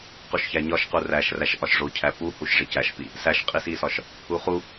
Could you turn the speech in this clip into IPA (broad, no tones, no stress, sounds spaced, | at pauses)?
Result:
q u ʃ ç æ ɲ ɒ ʃ q u r æ ʃ r æ ʃ ʔ ɒ ʃ ʐ o cʰ æ p u h u ʃ ʐ e c æ ʃ p i | s æ ʃ qʼ i s i s ɒ ʃ | u χ u